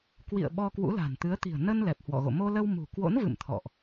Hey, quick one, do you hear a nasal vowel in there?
no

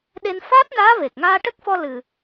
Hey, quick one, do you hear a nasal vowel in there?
no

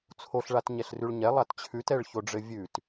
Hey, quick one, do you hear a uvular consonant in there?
no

